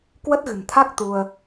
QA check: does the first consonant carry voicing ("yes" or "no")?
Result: no